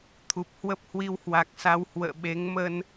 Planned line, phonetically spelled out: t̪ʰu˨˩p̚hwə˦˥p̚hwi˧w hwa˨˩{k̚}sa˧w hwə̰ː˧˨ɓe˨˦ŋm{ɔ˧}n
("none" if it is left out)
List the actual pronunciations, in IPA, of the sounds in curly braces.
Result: k̚, ə˧

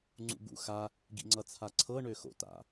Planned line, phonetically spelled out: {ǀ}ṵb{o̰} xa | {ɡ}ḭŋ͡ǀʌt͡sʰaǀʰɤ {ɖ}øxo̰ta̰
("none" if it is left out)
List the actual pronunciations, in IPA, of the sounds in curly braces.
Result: ŋ͡ǀ, ṵ, ɡ, ɳ

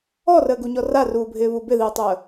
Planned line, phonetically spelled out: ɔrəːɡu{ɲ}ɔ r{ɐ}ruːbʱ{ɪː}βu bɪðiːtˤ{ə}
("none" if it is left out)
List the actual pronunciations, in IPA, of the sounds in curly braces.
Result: ɲ, a, ɪː, əː

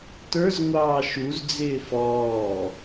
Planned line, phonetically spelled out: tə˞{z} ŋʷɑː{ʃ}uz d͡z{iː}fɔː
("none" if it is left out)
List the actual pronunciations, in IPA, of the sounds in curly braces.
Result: z, ʃ, ɪː

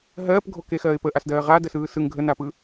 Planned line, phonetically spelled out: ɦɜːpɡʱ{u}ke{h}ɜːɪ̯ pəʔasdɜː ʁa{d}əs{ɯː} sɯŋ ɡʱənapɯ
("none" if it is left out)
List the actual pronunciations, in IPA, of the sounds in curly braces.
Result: o, x, d, ɯː

